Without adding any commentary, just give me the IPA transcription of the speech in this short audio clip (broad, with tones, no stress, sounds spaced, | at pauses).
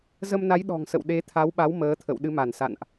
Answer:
z ə˧ m n a˨˦ j ɗ ɔ̤˨˩ ŋ s ə̰˧˨ w ɗ e˨˦ t̪ʰ a˨˦ w ɓ a˨˦ w m əː˨˦ t̪ʰ ə̰˧˨ w ɗ ɨ˨˦ m a˧˩ n s a̰˧˨ n ʔ